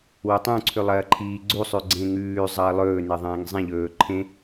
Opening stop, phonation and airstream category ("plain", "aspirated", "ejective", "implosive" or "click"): plain